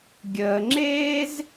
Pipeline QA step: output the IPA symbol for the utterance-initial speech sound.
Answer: ɡʲ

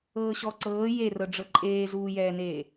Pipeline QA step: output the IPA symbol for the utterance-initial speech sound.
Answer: ɤː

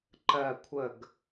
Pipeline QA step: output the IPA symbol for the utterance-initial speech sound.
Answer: ǃ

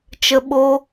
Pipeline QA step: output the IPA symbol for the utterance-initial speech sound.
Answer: t͡ʃ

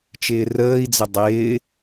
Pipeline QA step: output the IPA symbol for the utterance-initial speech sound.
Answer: t͡ʃ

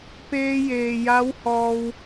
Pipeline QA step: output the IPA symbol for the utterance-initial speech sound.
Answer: p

